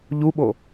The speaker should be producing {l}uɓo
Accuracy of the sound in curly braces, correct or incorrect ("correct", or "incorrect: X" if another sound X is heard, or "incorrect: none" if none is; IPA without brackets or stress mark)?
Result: incorrect: ʎ